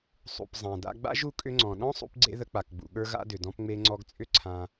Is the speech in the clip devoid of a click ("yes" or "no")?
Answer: no